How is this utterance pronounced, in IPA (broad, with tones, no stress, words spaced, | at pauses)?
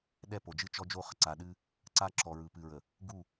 ɗɛ˦˨po˨d͡ʒɨ˦ t͡ʃɔ˦ d͡ʒo˦˨χə˨ ǀa˨ɗɨ˦ | ǀa˦ǁɔ˨ ɹɯ˨pɨ˨ɹə˨ | ɡu˦˨